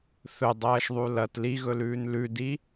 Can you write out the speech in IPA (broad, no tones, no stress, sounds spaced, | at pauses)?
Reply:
θ ɵ dˤ ɐː ʃ ðˤ u l ɐ t l i ɣ ɵ l ʉː n l ʉ d i